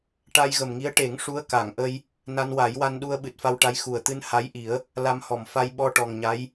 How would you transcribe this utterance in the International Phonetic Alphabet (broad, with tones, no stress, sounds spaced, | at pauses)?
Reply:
ʈ a˧ j ɣ ə˨˩ m ŋ i˧˥ ə̯ ʈ e˨˩˦ ŋ ʂ u˧˥ ə̯ k a˨˩˨ ŋ ʔ ə˧ j | n a˧ n w a˨˩˦ j w a˧ n ɗ u˧ ə̯ ɓ ɨ˨˩ t̚ f a˧ w ʈ a˧˥ j x u˨˩ ə̯ t̪ ɨ˧ n h a˧˥ j ʔ i˨˩˦ ə̯ | l a˧ m h ɔ˨˩˨ m f a˧ j ɓ ɔ˧ ʈ ɔ˨˩ ŋ ɲ a˧˥ j